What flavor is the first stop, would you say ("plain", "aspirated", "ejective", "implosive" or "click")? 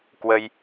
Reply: plain